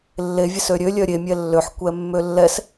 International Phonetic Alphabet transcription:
lː e vʲ e s ø ɾʲ ø lʲ œ ɾʲ e mʲ ɛ lː ø ħ kʷ ɛ mː ø lː ɛ s

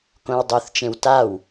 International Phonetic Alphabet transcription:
k õ w dˤ o θ t͡ʃ ẽ w t a w

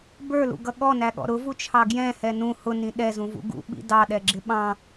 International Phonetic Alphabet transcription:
b ə˞ l ṵ ɡ ʌ ɠ ɔ n æ ɠ ɔ̰ ɾ ʊ v u t͡ʃʰ ɑ ɡ j ɛ̃ h ɛ n ũ h ʊ n ĩ ɗ ɛ z ũ v ṵ ɡ ṵ ɓ ḭ d ɑ ɗ ɛ ɡ͡ǁ ɪ ɓ ɑ̃

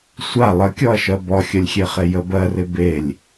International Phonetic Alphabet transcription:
sʷ a lˠ ə kʲ ɔ ɐ̯ ʃ ɜ b ɔ xʲ ə lʲ xʲ e χ e j ə b ɜ r ɪ b e lʲ

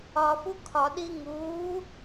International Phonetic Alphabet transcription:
ɒ f u kʰ ɒ ɗ i ŋ uː

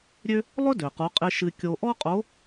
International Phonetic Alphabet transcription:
ɾʲ ø˥ | lˠ ɵ˥ d ø˩ q u˩˧ qʼ ɪ˧ ʃ ɨ˧ kʲ o˧ ʔ ɔ˥ qʼ o˧˥

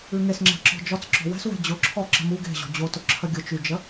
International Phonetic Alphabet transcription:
ʉ ŋ e s ŋ͡ǁ ɛ̤ ǁ ɔ̤ d͡ʒ ɔ t͡s ǁ ɔ̤ w ɛ̤ s w ɛ̤ d͡ʑ ʊ ǁʰ ɔ ǁ ə̤ m u ɡ e̤ ʑ ɔ̤ d͡ʑ o t ʊ ǁʰ ə ɡʲ ʊ t͡ʃ y d͡ʒ ə

